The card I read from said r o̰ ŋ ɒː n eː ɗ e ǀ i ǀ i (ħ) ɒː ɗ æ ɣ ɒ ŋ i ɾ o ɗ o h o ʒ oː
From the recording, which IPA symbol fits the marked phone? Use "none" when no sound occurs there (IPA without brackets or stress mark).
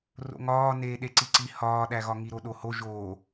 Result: h